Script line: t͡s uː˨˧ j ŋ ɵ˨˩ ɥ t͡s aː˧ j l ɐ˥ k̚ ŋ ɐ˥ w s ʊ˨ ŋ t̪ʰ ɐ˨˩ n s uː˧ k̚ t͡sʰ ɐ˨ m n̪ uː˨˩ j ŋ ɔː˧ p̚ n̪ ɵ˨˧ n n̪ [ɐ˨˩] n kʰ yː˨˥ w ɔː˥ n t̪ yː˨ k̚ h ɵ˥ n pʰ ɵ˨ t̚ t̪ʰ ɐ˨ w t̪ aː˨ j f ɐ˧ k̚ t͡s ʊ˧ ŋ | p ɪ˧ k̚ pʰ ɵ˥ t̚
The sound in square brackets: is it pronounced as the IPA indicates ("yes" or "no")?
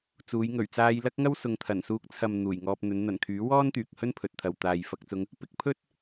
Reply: yes